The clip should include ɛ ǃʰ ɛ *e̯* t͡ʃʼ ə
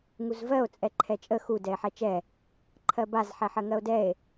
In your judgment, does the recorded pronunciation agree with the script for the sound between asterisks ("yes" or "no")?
no